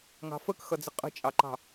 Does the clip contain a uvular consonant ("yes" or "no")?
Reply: yes